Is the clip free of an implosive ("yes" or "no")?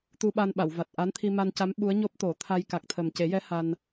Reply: no